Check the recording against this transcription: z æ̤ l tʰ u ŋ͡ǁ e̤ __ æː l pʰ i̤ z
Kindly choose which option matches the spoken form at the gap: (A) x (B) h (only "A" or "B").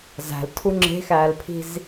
A